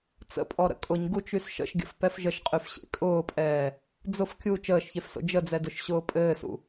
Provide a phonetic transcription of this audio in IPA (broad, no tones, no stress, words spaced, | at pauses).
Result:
t͡sə̰pʼɔ ɾə̰kʼʊɲ ɡut͡ʃysʃə̰ʃɡʲə̰f pɛfʒəʃqʼyfɕḛ kʼʊːpʼɛː | d͡zʊf kʲu t͡ʃəːʃçefso̰ d͡ʒəd͡zɛdʊʃ ɕʊːpʼɘːsṵ